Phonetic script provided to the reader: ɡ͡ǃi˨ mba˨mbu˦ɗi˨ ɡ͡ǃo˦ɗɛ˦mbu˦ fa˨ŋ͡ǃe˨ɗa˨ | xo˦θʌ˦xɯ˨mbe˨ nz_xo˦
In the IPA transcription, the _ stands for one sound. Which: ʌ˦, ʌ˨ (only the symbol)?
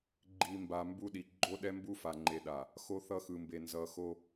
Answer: ʌ˨